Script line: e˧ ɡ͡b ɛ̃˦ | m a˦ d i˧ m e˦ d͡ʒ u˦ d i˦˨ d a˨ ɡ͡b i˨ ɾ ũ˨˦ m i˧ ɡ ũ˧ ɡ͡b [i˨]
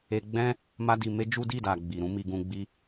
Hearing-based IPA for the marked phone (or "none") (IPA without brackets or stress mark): i˦